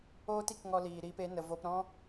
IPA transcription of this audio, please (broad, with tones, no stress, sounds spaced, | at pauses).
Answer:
oː˦ t i˧ k ŋ ɔ˧ l iː˨ ɾ iː˧ p e˨˦ n ə˧ v o˧ p ɾ ɔ̃˦